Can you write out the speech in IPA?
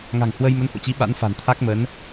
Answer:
ŋa̤˨˩ŋhwə˧jmə˨˦nho̰˧˨ t͡ɕi˨˦ ɓa̰˧˥n fa̤˨˩nt̪ʰa˦˥k̚mə˨˦n

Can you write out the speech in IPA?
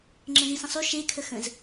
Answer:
ŋ͡ǁə̃zĩsə̃sˤʉ ʃe kʰəxə̃z

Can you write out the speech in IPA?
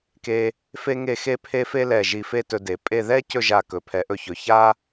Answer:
ke˧ | fe˥ŋe˥˧xe˥pʰe˥ fe˥lɛ˧˩ ʒi˧˩fe˥˧ tɵ˧de˩˧pʼe˥˧ ðɛ˥ cɵ˥˧ʒa˧˩ kɵ˩˧pʰɛ˩˧ʔɵ˧˩çɵ˩˧ ça˥

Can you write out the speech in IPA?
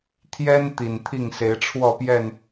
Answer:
t̪ʰjɛ˦n t̪i˨˩nt̪ʰi˥˨ŋ se˨˦ɪ̯ʈ͡ʂʰwɔ˥˨pjɛ˥˨n

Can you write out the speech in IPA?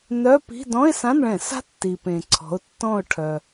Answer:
nœ˧˥˧pi̤˧˥˧ dɔ̃˧˥˧ɪ̯sã˧˥˧nɭɛ̃˧˩˧sa̤˦˥ tːi˩ pẽ˩ǀʰɔ̤˩˧ʊ̯ tːɔ̃˦˨ʊ̯ ʈʰœ˩

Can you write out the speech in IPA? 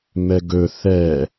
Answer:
mɛɡɵ θɛ

